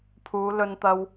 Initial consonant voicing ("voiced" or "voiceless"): voiceless